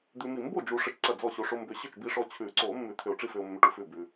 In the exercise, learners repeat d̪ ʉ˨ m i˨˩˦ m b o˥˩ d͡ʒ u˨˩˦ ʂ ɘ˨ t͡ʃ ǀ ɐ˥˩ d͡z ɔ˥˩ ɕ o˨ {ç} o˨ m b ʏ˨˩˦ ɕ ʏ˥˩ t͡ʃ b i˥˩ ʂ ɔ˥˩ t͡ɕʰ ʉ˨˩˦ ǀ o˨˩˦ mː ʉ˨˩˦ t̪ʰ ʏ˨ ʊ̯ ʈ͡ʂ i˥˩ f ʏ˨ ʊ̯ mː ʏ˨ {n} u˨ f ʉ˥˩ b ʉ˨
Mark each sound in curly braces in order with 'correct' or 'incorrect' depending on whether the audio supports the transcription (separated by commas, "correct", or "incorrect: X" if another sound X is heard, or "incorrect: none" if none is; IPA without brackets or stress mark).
incorrect: ʂ, incorrect: ʈ